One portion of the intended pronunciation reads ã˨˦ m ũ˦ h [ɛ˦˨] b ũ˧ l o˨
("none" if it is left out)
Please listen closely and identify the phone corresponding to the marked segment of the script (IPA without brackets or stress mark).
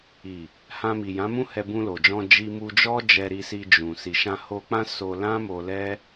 ɛ˧